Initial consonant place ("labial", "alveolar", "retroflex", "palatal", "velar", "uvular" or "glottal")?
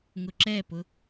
velar